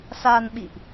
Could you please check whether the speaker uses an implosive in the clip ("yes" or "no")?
yes